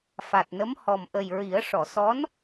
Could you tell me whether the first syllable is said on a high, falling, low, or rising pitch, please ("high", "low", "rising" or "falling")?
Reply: low